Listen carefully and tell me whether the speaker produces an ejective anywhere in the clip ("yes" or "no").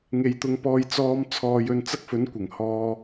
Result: no